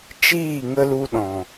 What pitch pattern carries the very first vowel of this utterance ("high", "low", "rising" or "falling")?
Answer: falling